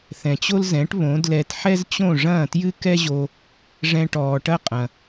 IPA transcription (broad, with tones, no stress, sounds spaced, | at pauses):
θ ɛ̃˩ t͡ɕ o˥ l z ɛ̃˩˥ ʈ β õ˩˥ d l ɛ˧ t ħ ɛ˥ z t͡ɕ õ˥˩ ʐ ɐ̃ː˥˩ t j ɨ˥ k ɛ˥ ʑ o˧ | ʐ ɛ̃˧ ʈ ɔː˩ ʈ ɐ˥ qʼ ɐ̃˩